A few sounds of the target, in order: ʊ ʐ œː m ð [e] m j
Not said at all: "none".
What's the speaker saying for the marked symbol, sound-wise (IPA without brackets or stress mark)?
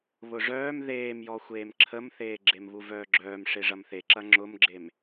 eː